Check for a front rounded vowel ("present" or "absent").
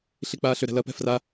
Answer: present